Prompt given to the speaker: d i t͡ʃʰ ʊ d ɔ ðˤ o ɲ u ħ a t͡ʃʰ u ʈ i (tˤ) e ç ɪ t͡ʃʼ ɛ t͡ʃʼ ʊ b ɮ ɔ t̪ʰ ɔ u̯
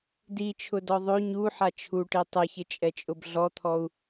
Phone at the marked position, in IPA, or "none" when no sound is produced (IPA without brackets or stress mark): tˤ